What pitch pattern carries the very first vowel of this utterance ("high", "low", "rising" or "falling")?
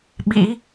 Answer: rising